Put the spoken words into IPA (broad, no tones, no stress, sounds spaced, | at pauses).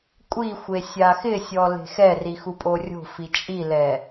kʷʼ i xʷ e sʲ a x ɪ sʲ ɔ l e̤ x ɛ r i x u pʼ o rʲ o̤ f i t͡ʃʼ i l ɛ